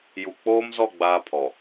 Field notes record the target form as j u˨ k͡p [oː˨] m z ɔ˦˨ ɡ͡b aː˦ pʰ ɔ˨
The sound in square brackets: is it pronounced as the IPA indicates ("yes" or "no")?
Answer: no